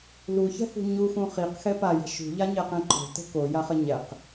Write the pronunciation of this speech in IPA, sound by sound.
luçɛ̤hṳ ɲuxũ χiqxɛ pajɛ̤ ʃṳʎaɲɛqɛ̃ ǃo̤tə̤ kojaχə ɲɛq

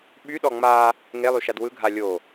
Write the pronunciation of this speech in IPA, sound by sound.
ɓyɗɔ ŋ͡ma | ŋelˠyʃad wɯɡʱa lʲo

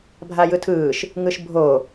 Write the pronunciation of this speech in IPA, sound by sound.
bʱajɯtʰɯːʃ | ŋɯʃbʱo

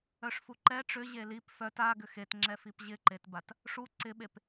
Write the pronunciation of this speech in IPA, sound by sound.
œʂfuǃɛ ʈ͡ʂʏ ʑelip fœt aɡʏ xetŋ͡ǁɛ fipʑɪǃetbat | ʂu ǀɪɓep

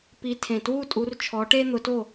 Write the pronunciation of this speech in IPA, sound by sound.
pi˨˦tʰẽ˨˩twu˦˨tʼu˨˦r t͡ʃʰɔ˨˦ʈe˦n̪ʊ˨˦to˦˨

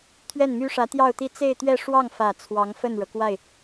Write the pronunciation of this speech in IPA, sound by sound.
t̪ʰɥɛ˥˩nmy˥ʂä˧˥ t̪jɑ˥˧ʊ̯t̪i˥˧ t͡se˥˧ɪ̯t̪ɥɛ˥˧ʂwɑ˥˩ŋ fä˨˩ t͡sʰwɑ˧˥ŋfə˥˩nɻɤ˩ kwa˥˩ɪ̯

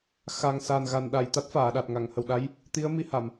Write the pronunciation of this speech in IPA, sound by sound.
xa˨˩ŋsa˨˩nɣa˨˩n ɗa˨˩j t̪a˦˥t̚faː˨˩˨ɗa˨˩t̚ŋa˨˩˨ŋ hə˨˩wɗa˧˥j | t̪i˧˥ə̯mi˧ ha˨˩˨m

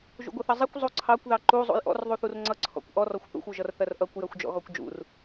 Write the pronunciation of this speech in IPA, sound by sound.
ʒṵɡʷʌθʌzˤikʷ zˤuǀʰɑkʷ ðɑǃu zˤṵjʔɔ̰r ðˤuθurŋ͡ǀʌ ǀʰɔ̰kʷʔɔr ɔxʷθṵxʷ uʒʌrθɜrʔʌkʷ jɜxʷd͡ʒɔ̰ɣɔkʷd͡ʒṵr

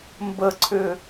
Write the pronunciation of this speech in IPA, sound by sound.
mbəǀʰʏ

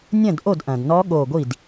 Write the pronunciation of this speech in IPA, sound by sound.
nʲɐ̃˥˩dʔo˥˩dʔɐ̃˩dnɔ˧˥ ɠo˧˩ɡʷi˥˩d

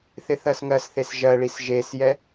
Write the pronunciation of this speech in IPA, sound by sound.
θɪθɜsŋɜsθes ʒɜɭis ʒesjɛ

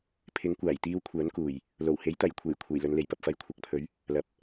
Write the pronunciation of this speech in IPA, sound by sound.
pʰɪ˨˥ŋkʷaː˨˩jt̪iː˧w kʷʰœː˨˥nkuː˨˩j | lo˨˩whe˨˥jt̪ɐ˨˩jkʷʰe˨˩j kʷʰe˨˩jlɵ˨nle˨˩j pɐ˨p̚fɐ˨˥jkʷʰɐ˨k̚pʰɵ˨˥ɥ | lɐ˨˥p̚

